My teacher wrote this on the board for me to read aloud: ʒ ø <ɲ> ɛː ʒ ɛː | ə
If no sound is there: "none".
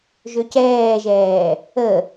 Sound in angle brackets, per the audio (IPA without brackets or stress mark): c